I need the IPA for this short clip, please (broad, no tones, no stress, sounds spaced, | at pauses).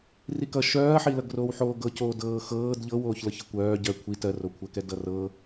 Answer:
r i k ʌ ʃ œː ɐ̯ ħ i l ʌ ɡ r oː w ħ oː ɡ ɤ c oː d ɤː x ɤː d ʎ ɤ w oː ç l ɤ ç ʌ kʷ œː ɟ ɜ kʷʰ i t ɜ r o kʷʰ ɜ k ɛ d ʌ r ɤ